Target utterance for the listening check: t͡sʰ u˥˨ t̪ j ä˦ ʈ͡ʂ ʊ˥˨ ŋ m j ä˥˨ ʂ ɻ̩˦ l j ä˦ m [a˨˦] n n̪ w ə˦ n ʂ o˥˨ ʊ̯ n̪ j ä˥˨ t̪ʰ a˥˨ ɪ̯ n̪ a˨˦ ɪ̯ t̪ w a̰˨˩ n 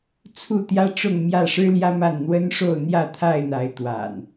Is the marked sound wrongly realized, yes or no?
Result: yes